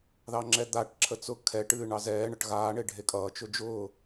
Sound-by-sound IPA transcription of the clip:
ð ɑ ŋ͡ǁ ɛ d̪ a ʈ ǁʰ ə t͡s ʊ kʰ ɛ ʈ ɨː ɳ ɑ z ɛː ɳ ʌ ʈ ɣ aː ɳ e ɖʱ e kʼ ʌː t͡ʃ ʊ d͡ʒ ʊː

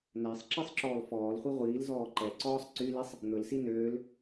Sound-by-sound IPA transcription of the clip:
n æ sˤ ǁ i sˤ ǁ ɔː l f ɔː l χʷ i ʁʷ iː l z ɔː ǃ ɛ ǀ ɔː sˤ ǀ y l i sˤ | n̪ ɵ l s i n øː l

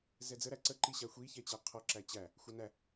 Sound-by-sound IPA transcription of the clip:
z ɛ d͡z ə ɾ æ ǀ ə ǃ i ɕ a xʷ i ç ɛ t͡ɕ æ qʰ ɔ ǁ æ t͡ɕ æ | xʷ a n æ

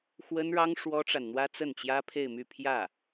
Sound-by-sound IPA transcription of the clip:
x w ə˥ n ɻ ɑ˥ ŋ ʂ w ɔ˥ ʈ͡ʂ a˨ n n̪ w ä˥ t͡s ə˥˩ n t͡ɕ j ä˥ pʰ e˥˧ ɪ̯ m y˥˧ pʰ j ä˥˩

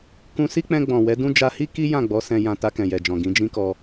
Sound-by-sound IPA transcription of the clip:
k ũ˧ s i˦ k͡p ɛ̃˧ ɡ͡b ɔ̃˨ w ɛ˨˦ d ũ˦ d͡ʒ a˧ h i˦ k i˦ j ã˦˨ ɡ͡b ɔ˨˦ s ɛ̃˧ j ã˧ t a˧ k ɛ̃˨ j ɛ˨ d͡ʒ ɔ̃˨ ɡ ĩ˨˦ d͡ʒ ĩ˦ k ɔ˧

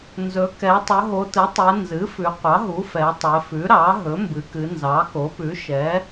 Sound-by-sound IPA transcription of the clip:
n z ɵ˩˧ k ɛ˩˧ tˤ ɵ˩˧ ɦ o˩˧ t ɨ˩˥ tˤ ɛ˩˧ n z ɨ˩˥ f ʉ˩˧ qʷ ɑ˩˥ ɦ u˩˥ f ɛ˩˧ tˤ ɛ˩˧ f ʉ˩˥ ɾ ɑ˩˥ ɦ ɵ˩˥ m b ɨ˩˧ k ɨ˩˧ n z ɑ˩˥ k o˩˥ p ʉ˩˥ ʃ ɛ˩˥

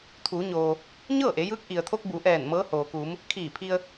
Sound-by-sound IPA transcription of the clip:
t̪ʰ uː˩˧ ɲ oː˩ | ɲ ɤː˥˨ ʔ e˩˧ j ɯː˧˥ k̚ ʔ i˩ ə̯ t̪ʰ o˧ k̚ b u˩˧ ʔ ɛː˧˩ n m ɤː˧˥ h oː˩ k u˩˧ m | kʰ iː˧˩ pʰ i˧ ə̯

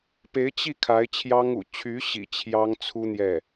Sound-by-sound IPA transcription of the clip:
p e˧˥ ɪ̯ t͡ɕ i˥˩ kʰ a˧˥ ɪ̯ t͡ɕʰ j ɑ˥ ŋ ṵ˨˩ t͡ɕʰ y˧˥ ɕ ḭ˨˩ t͡ɕʰ j ɑ˥ ŋ t͡sʰ u˥ n̪ j ɛ˥˩

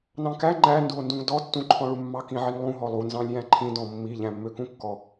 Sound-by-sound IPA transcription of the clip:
n ɑ̃ k æ ŋ͡ǃ æ n d u o̯ n d ũ ŋ d ɔ tː ũ ǃʰ ɔ̃ ɭ u mː ɑ k ĩ ʕ i ŋ lˠ ũ ɦ ɔ lˠ u n z ɑ̃ lʲ j æ̃ ǃʰ ĩ d ɔ̃ mː i ʎ æ̃ mː ø k ũ kː ɔ

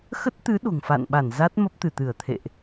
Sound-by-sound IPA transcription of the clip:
x ə˦˥ t̚ t̪ ɨ˨˦ ɗ o̤˨˩ ŋ f a̰˧˨ n ɓ a˧˩ n z a˦˥ t̚ m ə˦˥ p̚ t̪ ɨ˧˩ t̪ ɨ˧˩ ə̯ t̪ʰ ḛ˧˨ ʔ

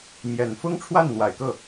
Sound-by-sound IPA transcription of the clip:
m j ɛ˨˩ n f ʊ˥ ŋ ʈ͡ʂʰ w a˥˩ n n̪ w a˨˩ ɪ̯ k ɤ˥˩

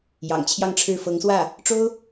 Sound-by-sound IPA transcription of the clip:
j ɑ̰˨˩ ŋ t͡ɕʰ j ɑ˥˧ ŋ ʈ͡ʂʰ ɻ̩˥˩ f ɤ˧˥ ŋ s w ä˥˩ | ʈ͡ʂ o˥ ʊ̯

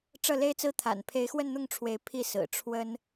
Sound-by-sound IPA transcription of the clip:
ʈ͡ʂ ɤ˥˩ l e˥ ɪ̯ t͡s ɹ̩˥ t̪ʰ a̰˨˩ n pʰ e˧˥ ɪ̯ x w ə˥˧ n n̪ ʊ˥˩ ŋ ʈ͡ʂʰ w e˧˥ ɪ̯ pʰ i˥˩ s ɹ̩˨˩ ʈ͡ʂʰ w ə˥ n

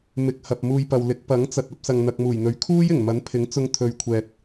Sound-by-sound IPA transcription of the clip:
m ɪ˨ k̚ h ɐ˨ p̚ m uː˧ j p ɐ˨ w l ɪ˨˥ k̚ p ɐ˨˥ ŋ t͡s ɐ˨ t̚ ɐ˨˥ p̚ s ɐ˨ ŋ n̪ ɐ˨ k̚ m uː˨˩ j n̪ ɵ˨˥ ɥ kʰ uː˥ j ɪ˨˩ ŋ m ɐ˨˥ n pʰ ɪ˨˥ ŋ t͡s ʊ˧ ŋ t̪ʰ ɵ˨ ɥ kʷʰ ɛː˨ t̚

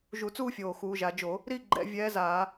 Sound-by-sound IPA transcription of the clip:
ʒ u˧˩˧ t͡s uː˥˧ fʲ oː˨˩ x uː˩˧ ʒ a˩˧ d͡ʒ o˧˩˧ | ɾ i˥˧ ɡ͡ǃ ɛ̰˧˩˧ vʲ ɛː˧˥ z aː˧˩˧

